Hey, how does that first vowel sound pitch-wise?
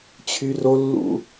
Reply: high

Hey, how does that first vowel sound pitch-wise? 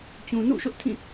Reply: low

